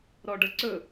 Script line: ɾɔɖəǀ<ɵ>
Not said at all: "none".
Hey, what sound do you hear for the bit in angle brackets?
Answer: ɵ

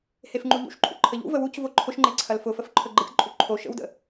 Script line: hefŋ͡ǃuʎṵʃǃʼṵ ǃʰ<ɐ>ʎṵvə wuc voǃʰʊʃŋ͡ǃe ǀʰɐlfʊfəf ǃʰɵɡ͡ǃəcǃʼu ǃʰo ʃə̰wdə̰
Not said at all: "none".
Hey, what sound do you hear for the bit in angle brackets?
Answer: ə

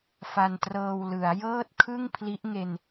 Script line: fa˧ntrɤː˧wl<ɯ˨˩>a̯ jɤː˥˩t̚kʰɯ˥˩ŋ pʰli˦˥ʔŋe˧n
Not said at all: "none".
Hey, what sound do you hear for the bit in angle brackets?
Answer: ɯ˩˦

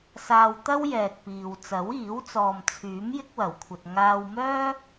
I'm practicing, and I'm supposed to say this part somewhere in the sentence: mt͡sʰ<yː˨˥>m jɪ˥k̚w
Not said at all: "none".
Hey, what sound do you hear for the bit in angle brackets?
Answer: yː˨˥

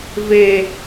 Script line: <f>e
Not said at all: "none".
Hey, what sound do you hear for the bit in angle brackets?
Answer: v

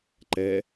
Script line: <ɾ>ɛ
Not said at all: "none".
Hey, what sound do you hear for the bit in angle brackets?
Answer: ǃ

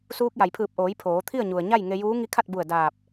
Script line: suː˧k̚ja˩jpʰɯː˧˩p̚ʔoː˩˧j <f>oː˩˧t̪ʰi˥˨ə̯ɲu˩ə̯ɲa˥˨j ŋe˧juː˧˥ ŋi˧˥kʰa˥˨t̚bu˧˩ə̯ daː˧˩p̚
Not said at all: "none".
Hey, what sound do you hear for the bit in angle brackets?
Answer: pʰ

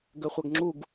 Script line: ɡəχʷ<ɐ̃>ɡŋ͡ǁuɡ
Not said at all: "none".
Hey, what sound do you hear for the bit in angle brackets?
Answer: ɐ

